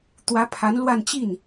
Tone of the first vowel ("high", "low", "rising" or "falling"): rising